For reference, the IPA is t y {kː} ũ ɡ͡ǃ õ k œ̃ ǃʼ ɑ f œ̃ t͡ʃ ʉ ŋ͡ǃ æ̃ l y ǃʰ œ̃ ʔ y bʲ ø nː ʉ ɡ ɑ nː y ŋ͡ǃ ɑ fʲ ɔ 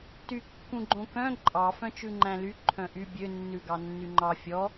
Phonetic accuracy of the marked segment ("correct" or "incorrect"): correct